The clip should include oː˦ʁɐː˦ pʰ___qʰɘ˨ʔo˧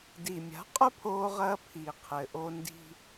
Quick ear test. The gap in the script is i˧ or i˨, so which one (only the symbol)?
i˨